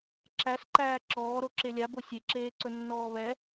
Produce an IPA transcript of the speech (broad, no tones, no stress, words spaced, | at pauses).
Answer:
ǁæsǃæː ǁɔːɾoǁe lʲabo sʲeǁeːǀɵnːɔː βɛ